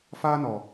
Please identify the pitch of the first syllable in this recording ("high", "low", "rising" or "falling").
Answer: high